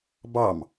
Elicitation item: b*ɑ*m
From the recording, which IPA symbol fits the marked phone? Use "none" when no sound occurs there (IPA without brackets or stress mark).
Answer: ɑ